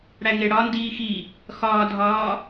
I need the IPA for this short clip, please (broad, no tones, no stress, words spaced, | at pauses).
ɽæŋeɽɒ ndiːxi | xɒːdʱɒː